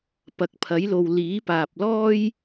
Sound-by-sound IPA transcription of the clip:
p ɐ˨ k̚ pʰ ɐ˨˥ j l o˨ w l iː˨˥ p aː˨ p̚ l ɔː˥ j

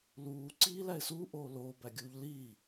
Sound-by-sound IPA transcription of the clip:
l uː ǀ iː l æ ɪ̯ s uː ʔ oː l oː b æ ɡʲ uː ʎ l iː

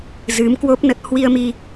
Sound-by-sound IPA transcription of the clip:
z ɨ˨˦ m k w o˦˥ p̚ n ə˦˥ t̚ h w i˧ ə̯ m i˧

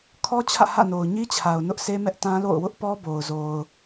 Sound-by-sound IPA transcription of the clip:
kʰ ɔ˦ t͡ɕʰ ä̰˦˨ h ä̰˦˨ n o˨ ʊ̯ ɲ i˦ t͡ɕʰ a˨ ʊ̯ n ʊ˦ ʔ s e˦ m ɛ˦ ʔ t ã˦ l o̰˦˨ ʊ̯ w ʊ˦ ʔ p ɔ˦ b o˨ ʊ̯ z o˨ ʊ̯

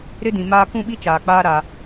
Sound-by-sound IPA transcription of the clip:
ɾ ɪ˦ d ĩ˨ m aː˦ k ũ˦˨ ɓ i˦ t͡ʃ aː˨ k͡p aː˦ ɾ a˦

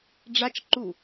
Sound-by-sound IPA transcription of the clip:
ɖ͡ʐ a t͡ʃ ǃ u

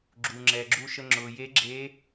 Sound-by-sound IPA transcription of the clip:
ɡ͡ǁ uː˩ ŋ͡ǁ ɛː˩ ɡ͡ǁ uː˧ ʃ ə˧ ŋ͡ǁ ʊː˩ j e˧˥ ɡ͡ǁ eː˧˥

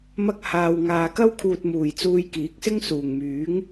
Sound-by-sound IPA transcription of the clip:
m ɐ˧ k̚ h aː˨ w ŋ aː˨ k ɐ˥ w kʰ uː˨ t̚ m uː˨˩ j t͡s uː˧ j k iː˨˥ k̚ s ɪ˥ ŋ s uː˨˩ ŋ m yː˨˥ ŋ

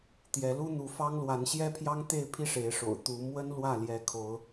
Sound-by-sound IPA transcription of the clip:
t̪ j ɛ˨˦ l u˦ n̪ u˨˦ f ɑ˦ ŋ l w a˨˦ n ɕ j ɛ˦ pʰ j ɑ˦ ŋ t̪ e˥˨ ɪ̯ pʰ i˦ ʂ e˨˦ ɪ̯ ʂ o̰˨˩ ʊ̯ t̪ u˨˦ m w ə˦ n l w ä˥˨ l j ɛ˨˦ kʰ o˨˦ ʊ̯

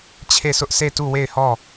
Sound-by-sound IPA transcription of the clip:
t͡ɕʰ e˦˨ s ʊ˦ ʔ sʰ e˦˨ t u˦˨ w e˦˨ ɪ̯ h ɔ˦˨

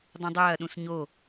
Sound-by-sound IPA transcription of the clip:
dˤ ũ dˤ ɐː ɗ ũ s ɲ o

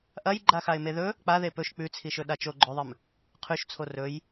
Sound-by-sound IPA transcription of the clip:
ʔ ɐ j ɡ͡ǃ a x a ɪ̯ m e ð ɵ | k͡p a ð e p ɵ ʃ k͡p ʉ t͡sʰ i ʃ ɵ ɗ a t͡ʃ o ɡ͡ǃ ɵ ðˤ ɨ m | qʰ ʉ ʃ t͡sʰ o r ɵ j

